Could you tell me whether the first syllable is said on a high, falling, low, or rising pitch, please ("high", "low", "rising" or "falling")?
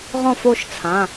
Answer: falling